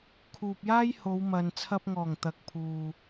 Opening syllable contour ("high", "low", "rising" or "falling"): low